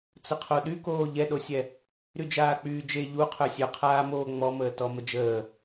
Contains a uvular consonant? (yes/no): yes